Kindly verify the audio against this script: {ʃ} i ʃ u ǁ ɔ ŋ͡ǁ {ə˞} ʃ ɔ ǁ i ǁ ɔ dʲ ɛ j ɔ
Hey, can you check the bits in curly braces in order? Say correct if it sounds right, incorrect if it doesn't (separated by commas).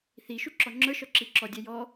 incorrect, correct